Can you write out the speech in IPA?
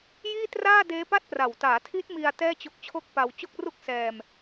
jiː˥˩traː˥˩deː˦˥pa˥˩t̚ pra˨˩wtaː˩˦tʰi˦˥t̚mi˧a̯ tɛː˥˩t͡ɕo˦˥k̚t͡ɕʰo˥˩k̚pa˧w t͡ɕo˥˩k̚ru˥˩k̚sɛː˧m

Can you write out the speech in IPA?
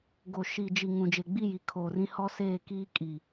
ɡo˨ ʃi˨ d͡ʒi˨ ŋũ˨d͡ʒe˨ɡ͡bi˦˨ ji˨ kʰoː˨rĩ˦ hɔ˦seː˦˨ kiː˦kʼi˨

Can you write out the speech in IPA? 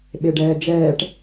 ɓeɖɛːd͡ʒɛːʈ

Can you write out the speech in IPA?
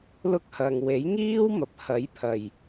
lʊ˥k̚hɐ˨ŋ we˨˥jŋiː˥w mɐ˨p̚hɐ˨˥jpʰɐ˨˩j

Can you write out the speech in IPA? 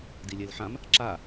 dilʲelħãm | ǁa

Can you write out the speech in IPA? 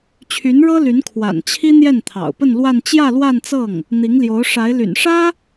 t͡ɕʰy˧˥nɻɤ˥ly˧˥n kʰwa̰˨˩nt͡ɕʰi˥ n̪jɛ˥˩nt̪ʰɑ̰˨˩ʊ̯pə˥˧n lwa˥˧n t͡ɕjä˥˧lwa˥˧nt͡sɤ˥˩ŋ | n̪i˧˥ŋljo˧˥ʊ̯ʂa˧˥ɪ̯ ly̰˨˩nʂä˥

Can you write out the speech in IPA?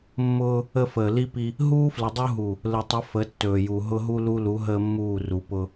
mːʊː˦ | ə˦fəː˨ li˦pi˦ | ɦuː˦flə˨dˤu˦ɦu˨ | lə˨tˤə˨˦ fə˨˦ tːɵː˨ju˨ ɦʊ˦ɦu˦lu˦lu˨˦ ɦəː˦mːuː˦˨ru˨ pʊ˦

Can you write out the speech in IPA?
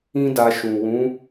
ĩ˦da˧ ʃũ˨ wũ˨˦

